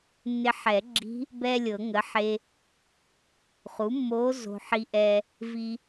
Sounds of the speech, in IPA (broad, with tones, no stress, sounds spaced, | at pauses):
nː ɪ˧ ħ ɛ˨˩˦ ɡ͡ǁ i̤˧˥ | b ɛː˥ lʲ ɤ˨˩˦ ŋ ə˩˥ ħ e˧ | χ u˩˥ mː oː˧˥ z o̤˧ ħ i˧ ʔ ɛ˧ | v i˧